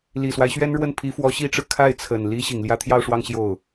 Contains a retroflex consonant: yes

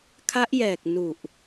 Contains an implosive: no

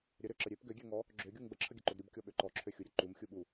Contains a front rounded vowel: yes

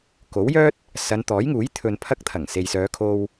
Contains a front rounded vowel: yes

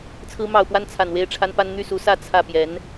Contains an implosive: no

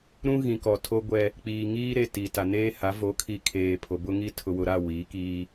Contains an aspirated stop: yes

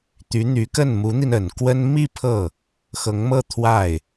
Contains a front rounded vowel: yes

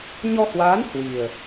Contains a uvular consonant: no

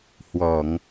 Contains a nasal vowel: no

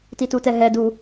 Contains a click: no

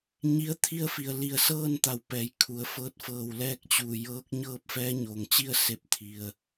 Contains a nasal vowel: no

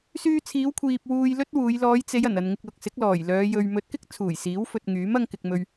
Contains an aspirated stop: yes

